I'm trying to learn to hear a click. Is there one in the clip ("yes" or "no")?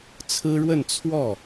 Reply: no